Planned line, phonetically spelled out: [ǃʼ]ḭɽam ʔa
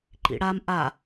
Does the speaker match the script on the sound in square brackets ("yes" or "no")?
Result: no